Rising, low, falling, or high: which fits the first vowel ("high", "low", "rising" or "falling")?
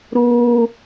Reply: high